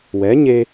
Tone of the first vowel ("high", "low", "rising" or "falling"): rising